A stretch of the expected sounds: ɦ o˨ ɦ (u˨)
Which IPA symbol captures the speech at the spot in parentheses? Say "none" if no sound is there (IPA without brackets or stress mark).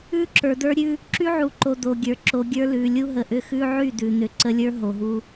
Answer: u˦